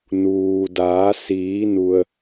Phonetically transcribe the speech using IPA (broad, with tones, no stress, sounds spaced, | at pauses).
n uː˩ d aː˩˧ s iː˩˧ n u˩ ə̯